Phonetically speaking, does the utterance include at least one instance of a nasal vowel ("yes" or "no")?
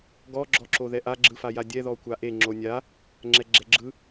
no